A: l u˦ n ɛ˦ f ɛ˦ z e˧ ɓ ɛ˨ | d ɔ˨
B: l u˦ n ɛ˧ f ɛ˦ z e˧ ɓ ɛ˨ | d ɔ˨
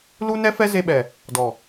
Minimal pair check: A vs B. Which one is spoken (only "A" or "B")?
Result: A